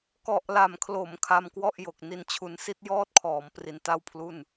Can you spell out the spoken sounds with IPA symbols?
k ɔ˨˩ ʔ l a˨˩ m kʰ l o˩˦ m kʰ a˧ m k w ɔ˥˩ ʔ j o˨˩ k̚ n i˦˥ n t͡ɕʰ u˧ n s i˥˩ t̚ j ɔː˥˩ t̚ kʰ ɔː˩˦ m p r i˧ n t a˥˩ w pʰ l u˥˩ n

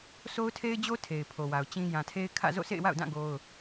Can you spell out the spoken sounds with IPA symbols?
sʰ o˦ ʊ̯ tʰ e˦ ɪ̯ d͡ʑ o˦ tʰ e˨ ɪ̯ pʰ o˨ w a˨ ʊ̯ t͡ɕ ĩ˦ j ã˨ tʰ e˦ ɪ̯ kʰ ä̰˦˨ z o̰˦˨ sʰ ḛ˦˨ ɪ̯ w a̰˦˨ ʊ̯ d ã˦˨ ɡ o˦ ʊ̯

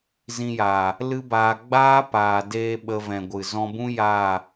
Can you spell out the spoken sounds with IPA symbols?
z ĩ˧ j aː˨ | l ɨ˦ b aː˧ ɡ͡b aː˦ p aː˨ d eː˧ ɓ ə˧ v ɛ̃˨ ɡʷ ɨ˨ z ɔ̃˧ b ũ˦ j aː˦˨

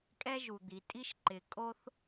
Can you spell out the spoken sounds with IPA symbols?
kʼ ɛ˥ ʒ u˩ d̪ i˩ tʼ i˥ ʃ ǃ ɪ˩ kʼ o˥ θ

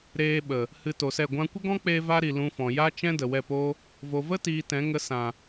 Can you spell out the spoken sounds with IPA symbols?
ɾ eː˧ ɓ ə˨ | h ɨ˧ t o˨ s ɛ˦˨ ɡʷ ã˧ kʷ ə˦ ɡ ɔ̃˦ k͡p eː˧ v a˦ ɾ i˨ l ũ˧ f ɔ̃˨ j a˦ t͡ʃ ɛ̃˦ d ə˨ w ɛ˦˨ p o˦ | v o˨ v ə˦ t iː˨ t ɛ̃˨˦ ŋ ə˧ s ã˨

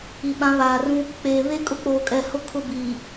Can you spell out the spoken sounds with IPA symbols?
i˨ ɓ ã˨˦ β aː˨ r ũ˦ | k͡p eː˨ β e˦ kʼ ʊ˦ k͡p oː˨ kʼ ɛ˨ h ʊ˦ kʰ ʊ˦˨ b iː˨

